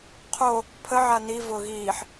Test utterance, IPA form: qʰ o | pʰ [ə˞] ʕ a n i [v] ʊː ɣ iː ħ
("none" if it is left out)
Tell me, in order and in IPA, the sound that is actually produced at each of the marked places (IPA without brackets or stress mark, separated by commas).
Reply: ə, v